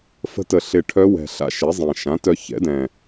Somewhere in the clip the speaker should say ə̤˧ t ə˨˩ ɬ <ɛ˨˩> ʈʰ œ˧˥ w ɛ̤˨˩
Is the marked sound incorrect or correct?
incorrect: ɪ˨˩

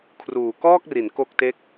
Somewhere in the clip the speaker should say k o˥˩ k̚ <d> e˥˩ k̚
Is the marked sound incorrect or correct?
incorrect: t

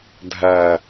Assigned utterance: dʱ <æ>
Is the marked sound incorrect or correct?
correct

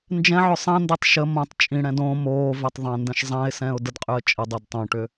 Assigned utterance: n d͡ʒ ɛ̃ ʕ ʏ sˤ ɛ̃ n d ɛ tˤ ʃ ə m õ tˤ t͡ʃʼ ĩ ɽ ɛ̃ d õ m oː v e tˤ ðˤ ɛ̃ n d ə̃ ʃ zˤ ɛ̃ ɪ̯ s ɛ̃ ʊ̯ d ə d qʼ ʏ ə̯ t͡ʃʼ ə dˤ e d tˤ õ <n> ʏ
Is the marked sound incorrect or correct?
incorrect: ʈ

